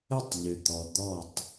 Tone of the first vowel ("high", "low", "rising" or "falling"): falling